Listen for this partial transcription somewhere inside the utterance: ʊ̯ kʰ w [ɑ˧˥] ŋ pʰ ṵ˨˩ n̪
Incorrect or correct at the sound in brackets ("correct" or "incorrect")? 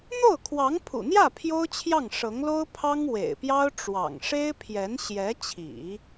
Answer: correct